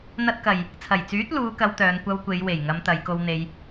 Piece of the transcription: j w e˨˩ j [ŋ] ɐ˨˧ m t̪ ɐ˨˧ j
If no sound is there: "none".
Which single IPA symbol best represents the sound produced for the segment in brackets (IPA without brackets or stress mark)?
ŋ